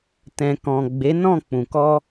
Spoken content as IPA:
t ɛ̃˨ k ɔ̃˨ ɡ͡b e˨˦ n ɔ̃˦˨ k͡p ũ˨ k ɔ˧

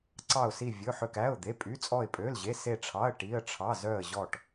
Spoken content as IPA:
ǀ ɑ˧˩ ʊ̯ s i˧˩ vʲ ɵ˩˧˩ ħ ø˧˩ k æ˩˧˩ ʊ̯ d̪ e˩˧˩ pʼ y˩˧˩ t͡sʼ ɔ˧˩ ɪ̯ pʼ ø˩˧˩ l ʑ e˩˧˩ s e˧˩ ʈ͡ʂʰ ɑ˩˧˩ ə̯ ʈ i˩˧˩ ə̯ ʈ͡ʂʰ ɑ˩˧˩ z œ˧˩ ə̯ ʑ ɔ˧˩ ʈ

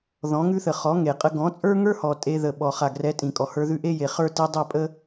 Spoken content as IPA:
ð ɔ̃˨˦ ŋ ʉ˦ θ ə˨ χ ɔ˨˦ ŋ e˨ qʼ ə˧ ɡ ɔ̃˨˦ t͡sʼ ə˞˦ ŋ ə˞˦ h ɔ˨ tʼ e˧ ð ə˨ ɓ ɔ˨ χ a˨ ɡ r ɛ˨˦ tʼ ĩ˨ kʼ ɔ˨ h ə˞˧ ð ʉ˧ ʔ e˦ j e˨ χ ə˞˦ t i˧ dˤ ɛ˦˨ pʼ ə˦

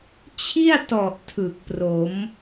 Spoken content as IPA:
t͡ɕʰ i˥˩ a̯ t ɔ˨˩ ʔ tʰ ɯ˨˩ k̚ p r o˩˦ m

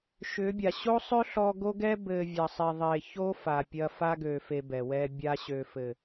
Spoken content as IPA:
ʃ ʏ˨˦ bʲ a˨ ɕ o˦ sˤ ø˦ ɬ ɔ˦ ɡ o˦ ɡ ɛ˦ b ɘ˨ vʲ ɐ˨ sˤ e˨ ðˤ e˨ ç o˦ f a˨ pʲ ɐ˦ f a˦ ɡ ø˨ f e˨ b ɛ˨ w ɛ˦ bʲ a˦ ɕ ø˨ f ɘ˨

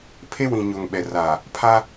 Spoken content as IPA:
pʰ e˦ w ĩ˨ ɲ o˨ ŋ ɓ ɛ˨ r aː˨ | pʰ a˦

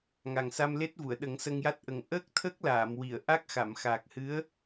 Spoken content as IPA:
ŋ a˨˩ ŋ s a˧ m l e˦˥ t̚ v u˨˩˨ ə̯ ɗ ə˨˩˦ ŋ s ə˧ ŋ j a˦˥ t̚ ʔ ə˨˩ ŋ ʔ əː˦˥ k̚ t̪ʰ ə˦˥ k̚ l aː˨˩˨ m w i˨˩˨ ə̯ ʔ a˦˥ k̚ x a˨˩˨ m x aː˨˩ k̚ h ɨ˧˥ ə̯

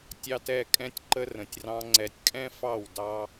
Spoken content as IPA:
tʲ ɑ˨ t ɛ˦˨ kʼ ɛ̃˦ tʲ ǃ ə˦ r ə̃˨ tʲ r ɑ̃˦ ŋ͡ǀ ɛ˨ tʲ kʼ ɛ̃˦ f ɑ˦˨ w d ɑ˦

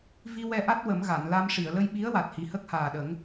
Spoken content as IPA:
v i˧ w ɛ˧ ʔ a˦˥ t̚ w ə˨˩˦ m ɣ a˨˩˨ n l a˧ m ʂ i˨˩˨ ə̯ l ə˧ j ɓ i˧˥ ə̯ w a˨˩ t̚ h i˨˩ h ə˦˥ k̚ h aː˨˩ ɗ ə˨˩˦ ŋ

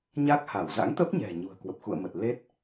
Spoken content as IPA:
ɲ a˦˥ k̚ h a˧˩ w z a̰˧˥ ŋ t̪ ə˦˥ p̚ ɲ ɛ̤˨˩ ɲ ṳ˨˩ ə̯ k w ə˨˩ p̚ x ṵ˧˨ ə̯ m ə˨˩ t̚ l e˦˥ t̚

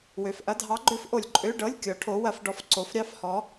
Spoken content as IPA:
w ø˨ f ʔ ɐ˧˥˧ dʱ ɑ˧˥ ɡ͡ǃ ø˧˥ f ʔ o˨ lʲ ǃʼ ø˧˥˧ ɖ ɤ˧˥˧ lʲ kʲ ɔ˧˥ ʈʰ o˧˥ w ɐ˧˥ f ɖ ɔ˧˥ f ǀ o˧˥ f ɾʲ ɑ˧˥˧ f h ɔ˧˥

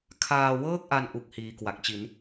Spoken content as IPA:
kʰ aː˧ w ɤː˥˩ k̚ ʔ a˧ n ʔ u˦˥ k̚ h iː˧ k w a˨˩ k̚ t͡ɕ i˩˦ n

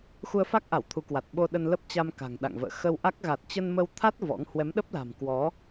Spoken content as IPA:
x u˧ ə̯ f a˦˥ k̚ ʔ a˧˩ w t̪ʰ u˨˦ k w a˨˩ t̚ ɓ o˧ ɗ ə˧ n l ə˦˥ p̚ t͡ɕ a˧ m k a̤˨˩ ŋ ɗ a̰˧˨ ŋ v ə̰ː˧˨ x ə˧ w ʔ a˦˥ k̚ ɣ a˨˩ t̚ t͡ɕ ə˧ n m ə˧ w t̪ʰ a˦˥ t̚ v ɔ̰˧˥ ŋ h w ɛ˨˦ m ɗ ə˦˥ p̚ l a̤˨˩ m k w ɔ˨˦

